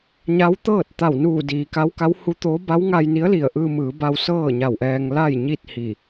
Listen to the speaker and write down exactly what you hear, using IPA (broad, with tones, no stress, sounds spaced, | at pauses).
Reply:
ɲ a˧˥ w t̪ ɤː˥˨ t̚ t̪ a˧˩ w n uː˧˩ d iː˩ k a˧˥ w k a˧˥ w h u˧˥ t̪ oː˧˥ b a˧˥ w ŋ a˧ j n i˧˥ ə̯ l i˧˩ ə̯ ʔ ɯː˧ m ɯː˩˧ b a˧ w s ɤː˥˨ ɲ a˧˩ w ʔ ɛː˧ ŋ l a˥˨ j ɲ i˥˨ t̚ h i˧˩